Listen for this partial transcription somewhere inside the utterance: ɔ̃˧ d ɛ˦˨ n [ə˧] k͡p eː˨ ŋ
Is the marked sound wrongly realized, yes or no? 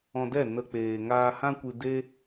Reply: no